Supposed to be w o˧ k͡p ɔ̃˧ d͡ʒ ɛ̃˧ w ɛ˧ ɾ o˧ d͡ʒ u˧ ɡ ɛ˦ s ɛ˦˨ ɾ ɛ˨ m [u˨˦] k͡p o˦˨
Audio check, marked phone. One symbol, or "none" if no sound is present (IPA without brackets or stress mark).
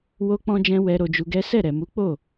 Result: u˨˦